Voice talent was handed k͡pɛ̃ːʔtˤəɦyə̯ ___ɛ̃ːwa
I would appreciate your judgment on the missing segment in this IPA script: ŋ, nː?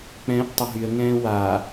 ŋ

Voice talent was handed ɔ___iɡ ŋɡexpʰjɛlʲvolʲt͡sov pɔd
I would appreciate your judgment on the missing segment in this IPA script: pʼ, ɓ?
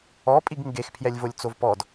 pʼ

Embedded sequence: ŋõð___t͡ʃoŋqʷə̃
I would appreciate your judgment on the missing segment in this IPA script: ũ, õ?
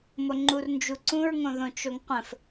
õ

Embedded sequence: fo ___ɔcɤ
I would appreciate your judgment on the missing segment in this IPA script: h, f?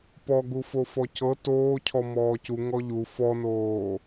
f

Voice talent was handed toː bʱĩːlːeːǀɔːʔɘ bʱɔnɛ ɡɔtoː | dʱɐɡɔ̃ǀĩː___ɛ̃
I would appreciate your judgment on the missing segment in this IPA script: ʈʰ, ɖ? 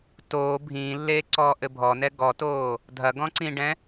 ɖ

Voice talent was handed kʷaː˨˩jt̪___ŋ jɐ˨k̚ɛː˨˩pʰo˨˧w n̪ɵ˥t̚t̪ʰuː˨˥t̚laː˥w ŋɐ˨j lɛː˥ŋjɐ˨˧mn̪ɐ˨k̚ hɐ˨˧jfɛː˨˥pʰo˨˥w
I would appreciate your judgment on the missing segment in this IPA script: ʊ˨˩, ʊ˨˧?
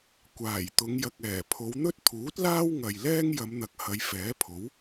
ʊ˨˧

